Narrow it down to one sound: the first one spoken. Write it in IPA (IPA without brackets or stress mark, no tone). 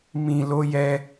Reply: m